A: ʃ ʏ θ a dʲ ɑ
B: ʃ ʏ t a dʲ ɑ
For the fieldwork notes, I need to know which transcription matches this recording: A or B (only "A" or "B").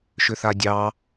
A